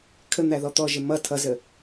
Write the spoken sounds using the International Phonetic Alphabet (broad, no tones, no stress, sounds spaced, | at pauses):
kʰ ə n̪ æ ð ɔ t̪ ɔ ʒ ɪ m ʌ tʰ ʌ z ə